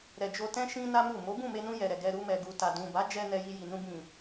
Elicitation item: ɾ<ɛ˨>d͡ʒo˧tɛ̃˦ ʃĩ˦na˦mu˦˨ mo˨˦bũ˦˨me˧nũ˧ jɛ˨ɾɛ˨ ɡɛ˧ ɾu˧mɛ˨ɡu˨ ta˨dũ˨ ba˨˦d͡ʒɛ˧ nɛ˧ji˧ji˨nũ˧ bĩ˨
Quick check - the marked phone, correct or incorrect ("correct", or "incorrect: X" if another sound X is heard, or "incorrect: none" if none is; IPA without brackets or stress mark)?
correct